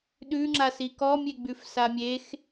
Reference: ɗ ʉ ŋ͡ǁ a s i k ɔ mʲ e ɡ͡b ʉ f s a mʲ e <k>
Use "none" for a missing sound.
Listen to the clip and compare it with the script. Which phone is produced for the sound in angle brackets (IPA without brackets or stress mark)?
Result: x